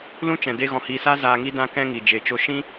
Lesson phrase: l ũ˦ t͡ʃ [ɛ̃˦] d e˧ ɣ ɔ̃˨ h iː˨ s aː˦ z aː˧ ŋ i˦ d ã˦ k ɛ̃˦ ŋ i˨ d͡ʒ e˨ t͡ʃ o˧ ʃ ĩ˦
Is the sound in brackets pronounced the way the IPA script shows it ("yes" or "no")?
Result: no